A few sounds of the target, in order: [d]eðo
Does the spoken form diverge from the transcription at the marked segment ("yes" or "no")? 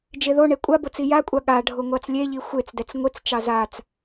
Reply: yes